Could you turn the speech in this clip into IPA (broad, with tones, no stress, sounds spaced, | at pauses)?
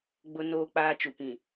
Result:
ɡ͡b ʊ˦ n oː˦ k͡p aː˦ t͡ʃ u˨ p ĩ˨